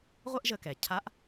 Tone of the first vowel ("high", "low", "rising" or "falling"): high